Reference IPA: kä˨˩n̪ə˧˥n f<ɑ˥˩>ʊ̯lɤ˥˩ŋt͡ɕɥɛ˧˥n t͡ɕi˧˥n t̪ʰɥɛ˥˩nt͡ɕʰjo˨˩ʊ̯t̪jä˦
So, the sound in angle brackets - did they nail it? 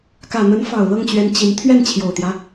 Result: no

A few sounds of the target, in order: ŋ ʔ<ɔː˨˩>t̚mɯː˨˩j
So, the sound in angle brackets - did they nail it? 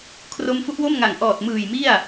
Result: yes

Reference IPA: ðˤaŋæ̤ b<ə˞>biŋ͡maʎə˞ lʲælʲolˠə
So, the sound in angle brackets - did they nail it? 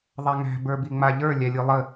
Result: yes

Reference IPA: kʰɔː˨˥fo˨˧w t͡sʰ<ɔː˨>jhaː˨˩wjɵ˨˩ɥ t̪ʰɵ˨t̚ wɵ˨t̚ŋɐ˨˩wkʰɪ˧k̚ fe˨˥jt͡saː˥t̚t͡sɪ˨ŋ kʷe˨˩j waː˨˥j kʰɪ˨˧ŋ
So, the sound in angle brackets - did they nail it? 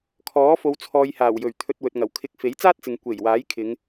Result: yes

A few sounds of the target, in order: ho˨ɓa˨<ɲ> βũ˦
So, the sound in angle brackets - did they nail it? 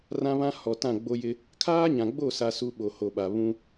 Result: no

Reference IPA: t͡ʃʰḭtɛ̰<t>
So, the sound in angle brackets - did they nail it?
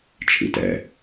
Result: no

